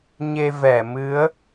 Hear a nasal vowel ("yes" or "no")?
no